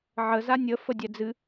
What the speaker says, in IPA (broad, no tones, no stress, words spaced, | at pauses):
ʕə zanʲə fədʲɛd͡zɨ